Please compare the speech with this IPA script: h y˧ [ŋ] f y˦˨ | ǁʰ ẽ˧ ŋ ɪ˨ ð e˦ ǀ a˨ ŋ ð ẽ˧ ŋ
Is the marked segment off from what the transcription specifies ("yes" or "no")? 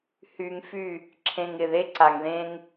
no